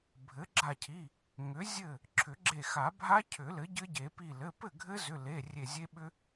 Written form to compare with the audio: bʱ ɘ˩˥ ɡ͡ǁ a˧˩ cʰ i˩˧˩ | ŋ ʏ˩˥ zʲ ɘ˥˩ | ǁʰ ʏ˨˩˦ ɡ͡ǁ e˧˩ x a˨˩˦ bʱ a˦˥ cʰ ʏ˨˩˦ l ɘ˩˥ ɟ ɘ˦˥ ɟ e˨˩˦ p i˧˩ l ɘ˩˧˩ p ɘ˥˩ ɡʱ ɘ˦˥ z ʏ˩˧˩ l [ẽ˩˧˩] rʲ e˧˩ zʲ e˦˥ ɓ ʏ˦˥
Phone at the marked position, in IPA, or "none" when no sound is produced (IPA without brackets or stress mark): e˩˧˩